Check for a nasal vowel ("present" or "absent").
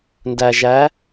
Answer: absent